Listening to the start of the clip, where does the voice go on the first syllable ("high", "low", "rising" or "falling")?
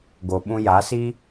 low